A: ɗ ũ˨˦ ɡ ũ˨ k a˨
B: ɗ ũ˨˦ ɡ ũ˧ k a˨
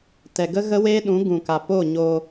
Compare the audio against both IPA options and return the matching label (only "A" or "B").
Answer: A